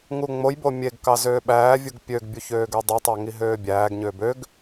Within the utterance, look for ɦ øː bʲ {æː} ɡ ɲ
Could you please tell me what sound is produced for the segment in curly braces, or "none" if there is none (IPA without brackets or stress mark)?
æː